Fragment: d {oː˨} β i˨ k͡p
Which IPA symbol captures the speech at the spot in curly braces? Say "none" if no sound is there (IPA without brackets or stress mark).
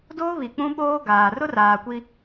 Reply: oː˦